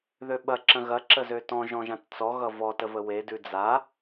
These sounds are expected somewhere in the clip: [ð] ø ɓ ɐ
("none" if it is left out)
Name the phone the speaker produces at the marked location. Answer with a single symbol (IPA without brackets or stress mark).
ð